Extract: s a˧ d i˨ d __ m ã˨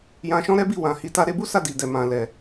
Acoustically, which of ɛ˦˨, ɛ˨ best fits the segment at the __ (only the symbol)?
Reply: ɛ˨